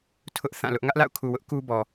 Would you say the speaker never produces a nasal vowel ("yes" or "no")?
no